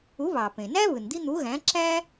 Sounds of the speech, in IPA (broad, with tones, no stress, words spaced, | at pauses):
u˨˥βɑ˩pẽ˩ næ˥βɯ˩n d̪i˥n̪u˨˥ɣæ̃˨˥ ǁæ˥